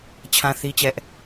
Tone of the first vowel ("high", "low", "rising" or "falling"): high